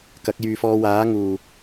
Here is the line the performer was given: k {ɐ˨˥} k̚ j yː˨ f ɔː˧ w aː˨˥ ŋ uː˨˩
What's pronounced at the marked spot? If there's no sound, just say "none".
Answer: ɐ˨˥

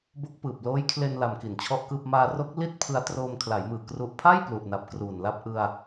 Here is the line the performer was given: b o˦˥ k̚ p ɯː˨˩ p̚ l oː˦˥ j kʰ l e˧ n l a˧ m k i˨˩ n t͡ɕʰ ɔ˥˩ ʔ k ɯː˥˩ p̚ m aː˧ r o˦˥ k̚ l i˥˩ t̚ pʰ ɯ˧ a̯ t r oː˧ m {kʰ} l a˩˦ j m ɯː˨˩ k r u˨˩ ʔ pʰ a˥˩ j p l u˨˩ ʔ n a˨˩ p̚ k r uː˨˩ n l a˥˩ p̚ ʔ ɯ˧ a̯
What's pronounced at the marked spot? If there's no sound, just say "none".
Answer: kʰ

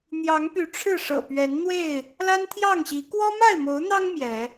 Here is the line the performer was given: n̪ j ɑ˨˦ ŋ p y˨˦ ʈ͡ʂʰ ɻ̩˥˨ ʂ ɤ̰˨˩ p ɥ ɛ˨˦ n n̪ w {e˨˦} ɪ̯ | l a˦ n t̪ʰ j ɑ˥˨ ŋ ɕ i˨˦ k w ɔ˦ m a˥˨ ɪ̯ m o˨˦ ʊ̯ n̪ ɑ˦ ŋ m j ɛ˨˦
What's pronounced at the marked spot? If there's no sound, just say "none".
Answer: e˥˨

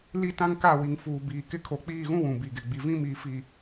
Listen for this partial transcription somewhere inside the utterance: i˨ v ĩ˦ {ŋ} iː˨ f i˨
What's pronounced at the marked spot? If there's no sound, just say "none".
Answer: m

